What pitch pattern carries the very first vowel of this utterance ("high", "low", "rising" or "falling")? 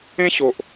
high